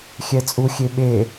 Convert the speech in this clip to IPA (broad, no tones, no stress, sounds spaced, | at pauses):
xʲ ɛ t͡sʼ u xʲ e ɓ e